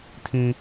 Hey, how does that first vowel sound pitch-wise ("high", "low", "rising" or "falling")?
high